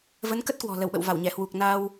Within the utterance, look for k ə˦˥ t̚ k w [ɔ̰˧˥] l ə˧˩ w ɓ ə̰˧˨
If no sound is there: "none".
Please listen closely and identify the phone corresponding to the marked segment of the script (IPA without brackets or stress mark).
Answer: ɔ̤˨˩